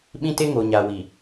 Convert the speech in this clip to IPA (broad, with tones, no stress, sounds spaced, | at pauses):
ɓ ĩ˦ t e˦ ŋ oː˨ ɲ aː˨ w iː˨